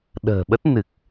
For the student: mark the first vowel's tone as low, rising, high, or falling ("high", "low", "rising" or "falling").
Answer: low